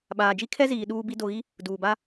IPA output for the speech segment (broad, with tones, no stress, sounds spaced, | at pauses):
ɓ aː˨ d͡ʒ i˦ kʰ ɛ˦ z iː˨ ɗ uː˨ b i˨ d o˨ ɣ i˦ | d uː˨ b a˦